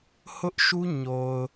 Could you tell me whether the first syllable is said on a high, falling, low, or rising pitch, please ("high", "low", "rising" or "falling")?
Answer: high